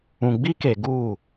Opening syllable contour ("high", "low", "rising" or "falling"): low